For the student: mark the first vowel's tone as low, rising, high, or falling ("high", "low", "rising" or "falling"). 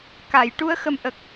low